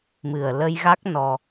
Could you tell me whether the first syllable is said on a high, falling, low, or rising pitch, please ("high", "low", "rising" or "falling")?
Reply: low